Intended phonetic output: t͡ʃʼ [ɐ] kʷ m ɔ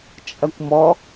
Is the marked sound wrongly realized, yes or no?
no